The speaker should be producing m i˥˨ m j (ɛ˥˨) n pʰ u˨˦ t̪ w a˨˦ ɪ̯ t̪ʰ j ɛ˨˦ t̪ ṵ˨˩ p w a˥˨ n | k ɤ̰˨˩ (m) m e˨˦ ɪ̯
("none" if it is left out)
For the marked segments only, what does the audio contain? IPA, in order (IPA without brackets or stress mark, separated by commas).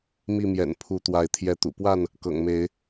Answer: ɛ̰˨˩, ŋ